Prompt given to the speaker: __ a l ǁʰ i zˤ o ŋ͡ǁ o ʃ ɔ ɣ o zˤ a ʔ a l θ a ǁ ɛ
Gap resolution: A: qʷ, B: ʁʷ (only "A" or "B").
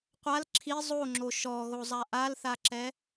A